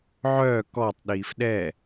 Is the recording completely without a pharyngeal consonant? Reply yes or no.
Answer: no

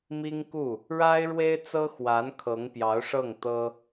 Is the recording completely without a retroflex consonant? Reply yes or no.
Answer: no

